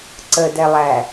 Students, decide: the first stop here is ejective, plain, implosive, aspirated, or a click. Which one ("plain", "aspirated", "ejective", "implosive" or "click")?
click